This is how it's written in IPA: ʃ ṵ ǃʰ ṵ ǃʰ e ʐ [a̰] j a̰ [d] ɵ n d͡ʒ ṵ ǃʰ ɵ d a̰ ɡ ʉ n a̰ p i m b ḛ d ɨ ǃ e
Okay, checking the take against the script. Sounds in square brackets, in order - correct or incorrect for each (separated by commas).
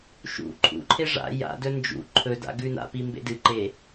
correct, correct